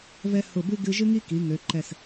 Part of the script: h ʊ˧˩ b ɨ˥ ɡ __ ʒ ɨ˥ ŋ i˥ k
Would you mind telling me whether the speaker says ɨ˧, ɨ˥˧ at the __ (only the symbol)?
ɨ˧